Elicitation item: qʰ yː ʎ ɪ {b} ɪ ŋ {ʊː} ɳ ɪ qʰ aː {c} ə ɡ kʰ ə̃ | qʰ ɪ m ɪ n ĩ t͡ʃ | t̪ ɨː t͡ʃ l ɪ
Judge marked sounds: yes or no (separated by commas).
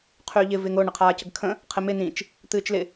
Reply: no, yes, yes